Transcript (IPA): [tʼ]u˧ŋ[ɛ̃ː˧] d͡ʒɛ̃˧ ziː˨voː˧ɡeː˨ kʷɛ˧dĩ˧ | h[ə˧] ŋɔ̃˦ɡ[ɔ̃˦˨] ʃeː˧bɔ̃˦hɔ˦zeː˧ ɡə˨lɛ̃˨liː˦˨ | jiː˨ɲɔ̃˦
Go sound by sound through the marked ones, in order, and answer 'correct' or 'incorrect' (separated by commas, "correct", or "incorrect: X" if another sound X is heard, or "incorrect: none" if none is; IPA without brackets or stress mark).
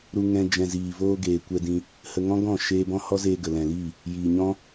incorrect: ɾ, incorrect: ɛ̃˧, correct, correct